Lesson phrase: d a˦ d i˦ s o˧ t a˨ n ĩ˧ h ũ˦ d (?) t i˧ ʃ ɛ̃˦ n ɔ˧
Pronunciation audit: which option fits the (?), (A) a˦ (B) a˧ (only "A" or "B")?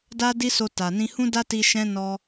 A